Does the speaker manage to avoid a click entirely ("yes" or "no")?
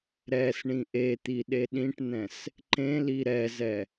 no